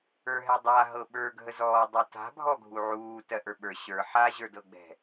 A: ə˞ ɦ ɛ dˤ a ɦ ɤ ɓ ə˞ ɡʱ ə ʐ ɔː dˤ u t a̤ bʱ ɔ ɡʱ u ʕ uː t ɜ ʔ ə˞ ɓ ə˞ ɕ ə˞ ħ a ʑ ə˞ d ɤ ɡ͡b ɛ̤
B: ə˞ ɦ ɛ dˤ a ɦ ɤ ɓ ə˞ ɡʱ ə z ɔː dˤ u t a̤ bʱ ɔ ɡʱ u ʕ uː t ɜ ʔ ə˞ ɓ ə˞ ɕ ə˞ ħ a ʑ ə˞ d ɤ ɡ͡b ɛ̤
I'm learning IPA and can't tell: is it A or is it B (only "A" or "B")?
B